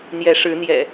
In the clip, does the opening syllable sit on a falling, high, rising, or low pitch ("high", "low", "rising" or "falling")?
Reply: rising